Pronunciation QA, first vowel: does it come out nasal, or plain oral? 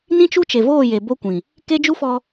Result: nasal